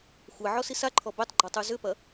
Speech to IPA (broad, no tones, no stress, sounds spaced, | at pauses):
xʷ ɛ ʕ ɔ s i s a ǃʰ ɔ b ø tˤ ɡ͡ǃ ɔ tˤ y z ʏ p ɐ